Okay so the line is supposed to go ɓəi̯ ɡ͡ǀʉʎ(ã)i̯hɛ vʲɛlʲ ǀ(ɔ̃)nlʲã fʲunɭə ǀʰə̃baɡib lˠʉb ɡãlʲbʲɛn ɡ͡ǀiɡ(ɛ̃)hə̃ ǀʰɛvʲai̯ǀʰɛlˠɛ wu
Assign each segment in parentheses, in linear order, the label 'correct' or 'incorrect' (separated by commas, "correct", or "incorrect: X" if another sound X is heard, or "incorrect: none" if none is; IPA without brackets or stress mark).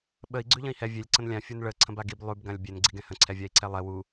incorrect: ə̃, incorrect: ə̃, correct